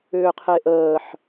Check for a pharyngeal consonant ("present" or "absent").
present